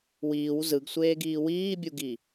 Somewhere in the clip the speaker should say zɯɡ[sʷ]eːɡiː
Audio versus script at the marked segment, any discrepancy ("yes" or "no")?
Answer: no